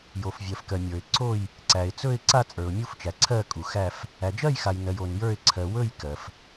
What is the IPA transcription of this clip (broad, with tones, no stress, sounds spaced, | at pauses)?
j o˨ f vʲ ɜ˨ f k ɜ˨ mʲ ə˞˨ ɪ̯ ǀ o˥˧ j | ǀ æ˨ ɪ̯ t͡s ɵ˥˧ ɪ̯ ǀ a˥˧ t͡sʼ ə˞˨ ʊ̯ mʲ u˥˧ f t͡ʃ æ˨ ǀʰ ɜ˥˧ kʼ u˨ x æ˥˧ f | æ˨ d͡ʒ ɜ˥˧ j x a˨ j n ɜ˨ j o˨ n j ə˞˥˧ ɪ̯ ǀʰ ɜ˨ w ɵ˥˧ j k ɜ˨ f